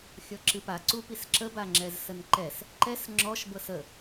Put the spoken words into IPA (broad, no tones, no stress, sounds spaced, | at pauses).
xʲ ɔ ǁ ɨ p a ǀ u p i s ǁ ə b a ŋ͡ǁ ɛ z s ə n ǃ ɛ s | ǃ ɛ s ŋ͡ǁ ɔ ʃ b ɤ s ə